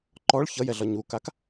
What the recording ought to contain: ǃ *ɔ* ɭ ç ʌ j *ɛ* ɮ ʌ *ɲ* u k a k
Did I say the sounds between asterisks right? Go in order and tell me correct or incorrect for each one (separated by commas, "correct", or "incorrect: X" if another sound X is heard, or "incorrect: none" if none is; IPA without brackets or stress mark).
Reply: correct, correct, correct